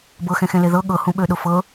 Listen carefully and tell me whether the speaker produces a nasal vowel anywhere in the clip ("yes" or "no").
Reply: yes